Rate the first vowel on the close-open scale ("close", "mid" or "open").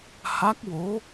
open